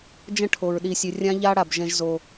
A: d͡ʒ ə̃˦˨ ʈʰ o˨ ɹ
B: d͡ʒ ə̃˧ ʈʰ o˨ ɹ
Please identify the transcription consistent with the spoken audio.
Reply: A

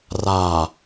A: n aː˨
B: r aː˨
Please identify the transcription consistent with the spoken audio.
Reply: B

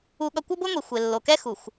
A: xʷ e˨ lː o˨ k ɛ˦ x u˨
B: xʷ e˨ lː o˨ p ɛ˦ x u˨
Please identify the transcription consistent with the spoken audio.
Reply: A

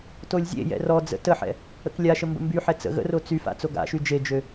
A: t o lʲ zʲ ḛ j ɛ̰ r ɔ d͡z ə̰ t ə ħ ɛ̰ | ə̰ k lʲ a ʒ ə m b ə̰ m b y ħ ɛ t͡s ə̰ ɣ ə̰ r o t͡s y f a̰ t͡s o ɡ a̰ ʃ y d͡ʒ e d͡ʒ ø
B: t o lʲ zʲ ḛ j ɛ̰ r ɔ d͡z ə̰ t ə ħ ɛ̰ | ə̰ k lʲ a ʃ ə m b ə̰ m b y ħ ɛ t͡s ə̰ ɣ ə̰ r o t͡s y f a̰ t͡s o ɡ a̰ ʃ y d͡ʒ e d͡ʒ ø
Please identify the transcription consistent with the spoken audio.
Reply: B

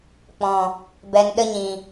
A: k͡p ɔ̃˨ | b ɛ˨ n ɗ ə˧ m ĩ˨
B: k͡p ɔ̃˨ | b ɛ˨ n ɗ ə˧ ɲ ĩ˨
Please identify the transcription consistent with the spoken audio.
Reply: B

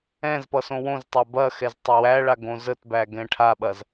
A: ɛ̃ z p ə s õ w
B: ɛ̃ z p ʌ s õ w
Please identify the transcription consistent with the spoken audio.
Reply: B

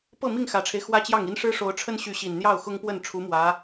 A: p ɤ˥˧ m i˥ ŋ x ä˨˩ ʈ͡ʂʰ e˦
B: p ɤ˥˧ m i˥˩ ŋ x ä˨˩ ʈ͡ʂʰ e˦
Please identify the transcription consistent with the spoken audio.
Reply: B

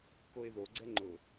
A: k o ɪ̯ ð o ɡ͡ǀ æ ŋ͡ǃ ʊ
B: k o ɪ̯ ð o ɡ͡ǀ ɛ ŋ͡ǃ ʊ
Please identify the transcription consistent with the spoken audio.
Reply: B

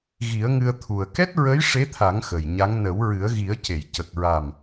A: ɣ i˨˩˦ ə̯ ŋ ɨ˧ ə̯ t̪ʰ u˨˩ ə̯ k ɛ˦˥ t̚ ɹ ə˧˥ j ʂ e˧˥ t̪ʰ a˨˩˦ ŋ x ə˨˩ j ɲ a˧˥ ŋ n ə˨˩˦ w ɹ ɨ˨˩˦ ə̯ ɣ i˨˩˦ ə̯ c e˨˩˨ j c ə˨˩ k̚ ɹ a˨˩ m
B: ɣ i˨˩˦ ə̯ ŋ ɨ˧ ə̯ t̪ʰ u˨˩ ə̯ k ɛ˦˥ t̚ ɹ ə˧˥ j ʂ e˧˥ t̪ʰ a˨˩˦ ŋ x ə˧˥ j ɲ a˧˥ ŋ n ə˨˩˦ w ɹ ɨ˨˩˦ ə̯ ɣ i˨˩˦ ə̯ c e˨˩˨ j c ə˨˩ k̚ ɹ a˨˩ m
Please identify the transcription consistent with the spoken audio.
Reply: A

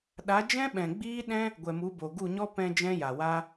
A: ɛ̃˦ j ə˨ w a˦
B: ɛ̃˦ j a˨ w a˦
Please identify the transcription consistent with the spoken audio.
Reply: B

